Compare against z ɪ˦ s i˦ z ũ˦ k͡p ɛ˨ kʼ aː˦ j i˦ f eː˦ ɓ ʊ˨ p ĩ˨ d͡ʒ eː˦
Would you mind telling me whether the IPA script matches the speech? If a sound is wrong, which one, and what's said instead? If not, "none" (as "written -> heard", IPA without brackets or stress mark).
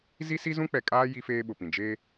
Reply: ɪ˦ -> i˦